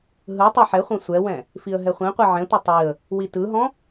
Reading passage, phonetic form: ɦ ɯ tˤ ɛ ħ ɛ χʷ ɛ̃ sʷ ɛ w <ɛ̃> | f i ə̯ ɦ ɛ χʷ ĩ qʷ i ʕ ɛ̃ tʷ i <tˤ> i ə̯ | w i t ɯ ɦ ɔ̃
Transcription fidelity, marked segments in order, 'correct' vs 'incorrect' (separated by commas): correct, correct